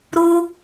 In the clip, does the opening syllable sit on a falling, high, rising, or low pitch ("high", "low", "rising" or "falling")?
high